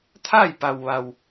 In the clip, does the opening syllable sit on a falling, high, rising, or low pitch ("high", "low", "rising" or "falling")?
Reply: falling